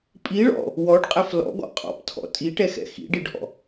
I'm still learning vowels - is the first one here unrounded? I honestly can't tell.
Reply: yes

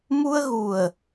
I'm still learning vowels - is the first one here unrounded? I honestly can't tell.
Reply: no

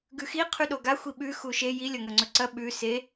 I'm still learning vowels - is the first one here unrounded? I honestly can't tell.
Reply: no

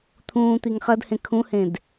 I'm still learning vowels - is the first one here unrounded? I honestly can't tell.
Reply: no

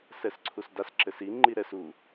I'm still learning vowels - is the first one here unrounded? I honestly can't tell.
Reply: yes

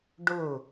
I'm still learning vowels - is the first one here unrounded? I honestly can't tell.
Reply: no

